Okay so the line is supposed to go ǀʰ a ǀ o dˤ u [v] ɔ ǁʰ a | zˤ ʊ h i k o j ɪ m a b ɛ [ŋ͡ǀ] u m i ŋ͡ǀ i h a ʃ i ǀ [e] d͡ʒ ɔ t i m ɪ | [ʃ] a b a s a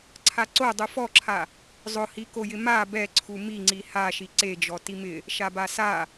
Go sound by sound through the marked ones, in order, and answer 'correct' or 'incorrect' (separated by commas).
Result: incorrect, incorrect, correct, correct